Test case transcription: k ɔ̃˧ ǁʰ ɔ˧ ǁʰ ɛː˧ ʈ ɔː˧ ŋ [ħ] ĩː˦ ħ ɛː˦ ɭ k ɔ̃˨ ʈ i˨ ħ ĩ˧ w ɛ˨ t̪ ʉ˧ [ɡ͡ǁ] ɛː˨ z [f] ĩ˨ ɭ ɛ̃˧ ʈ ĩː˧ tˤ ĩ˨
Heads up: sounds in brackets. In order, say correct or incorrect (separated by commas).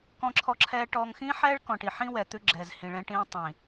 incorrect, correct, incorrect